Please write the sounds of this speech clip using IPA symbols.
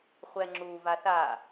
χʷ ɛ ŋ͡ǁ u v a θ a

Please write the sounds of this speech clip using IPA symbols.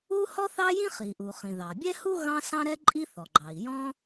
u˥ h ɔ˥ θ ɑ˥ j ĩ˥ χ i˩ ʔ u˩ χ ĩ˩ ð ɑ˩ bʲ ɛ˥ h u˥ ɣ ɑ̃˥ s ɑ̃˥ ɾ ɛ˥ ǃʼ i˥ θ ɔ˩ ɡ͡ǃ ɑ˩ i̯ j ɔ̃˥

